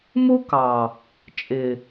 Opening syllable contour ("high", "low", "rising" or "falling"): high